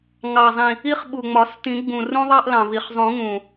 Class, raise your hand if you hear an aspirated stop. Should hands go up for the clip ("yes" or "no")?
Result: no